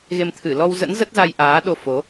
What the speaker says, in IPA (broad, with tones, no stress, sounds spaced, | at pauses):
ɣ e˧ m t̪ʰ ɨ˧˩ l ɔ˧ w z ə̰˧˥ n z ə˦˥ t̚ z a˧ j ʔ aː˨˦ ɗ o˧ f o˨˦